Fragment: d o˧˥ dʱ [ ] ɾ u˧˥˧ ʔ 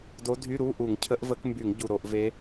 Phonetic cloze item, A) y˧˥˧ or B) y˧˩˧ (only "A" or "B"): A